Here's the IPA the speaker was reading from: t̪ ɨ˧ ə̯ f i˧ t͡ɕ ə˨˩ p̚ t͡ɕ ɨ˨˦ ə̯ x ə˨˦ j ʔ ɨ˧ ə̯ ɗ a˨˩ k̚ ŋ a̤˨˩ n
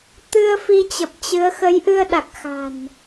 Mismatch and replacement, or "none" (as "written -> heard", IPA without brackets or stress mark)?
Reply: ŋ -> x